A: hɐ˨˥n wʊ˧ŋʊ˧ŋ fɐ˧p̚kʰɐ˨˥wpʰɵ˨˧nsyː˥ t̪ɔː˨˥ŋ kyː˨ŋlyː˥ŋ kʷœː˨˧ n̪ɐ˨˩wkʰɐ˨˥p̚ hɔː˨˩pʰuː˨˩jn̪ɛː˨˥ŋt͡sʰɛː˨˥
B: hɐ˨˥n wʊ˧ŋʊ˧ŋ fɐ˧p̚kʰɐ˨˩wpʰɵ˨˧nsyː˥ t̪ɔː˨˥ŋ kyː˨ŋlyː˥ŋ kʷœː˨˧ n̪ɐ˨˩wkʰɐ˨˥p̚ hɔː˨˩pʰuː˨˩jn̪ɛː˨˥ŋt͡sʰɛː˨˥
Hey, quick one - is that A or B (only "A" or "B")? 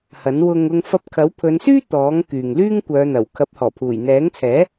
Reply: A